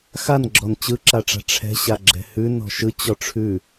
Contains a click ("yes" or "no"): yes